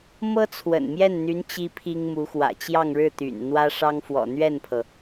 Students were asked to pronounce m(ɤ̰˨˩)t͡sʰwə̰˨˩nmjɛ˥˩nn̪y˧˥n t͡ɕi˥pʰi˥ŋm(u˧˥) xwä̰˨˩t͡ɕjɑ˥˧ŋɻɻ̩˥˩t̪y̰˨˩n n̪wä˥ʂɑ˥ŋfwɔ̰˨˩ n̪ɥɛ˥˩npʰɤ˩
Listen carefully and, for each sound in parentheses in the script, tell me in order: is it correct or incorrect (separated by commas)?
incorrect, correct